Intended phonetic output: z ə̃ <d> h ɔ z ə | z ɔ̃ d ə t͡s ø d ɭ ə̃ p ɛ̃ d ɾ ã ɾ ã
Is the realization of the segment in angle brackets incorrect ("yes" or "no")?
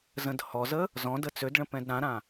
no